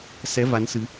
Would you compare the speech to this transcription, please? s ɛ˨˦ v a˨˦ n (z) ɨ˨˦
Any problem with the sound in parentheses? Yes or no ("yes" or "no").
yes